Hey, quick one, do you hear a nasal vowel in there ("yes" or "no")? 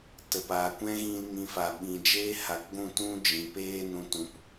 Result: yes